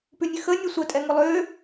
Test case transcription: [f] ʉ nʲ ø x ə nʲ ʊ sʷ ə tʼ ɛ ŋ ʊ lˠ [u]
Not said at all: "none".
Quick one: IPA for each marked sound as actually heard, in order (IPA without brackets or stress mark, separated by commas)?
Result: p, ø